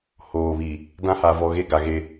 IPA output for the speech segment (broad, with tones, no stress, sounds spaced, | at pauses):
h oː˨ β i˨ | d ã˦ h a˨ v ɔ˨ ɣ e˦ ɡ a˨ ɣ e˦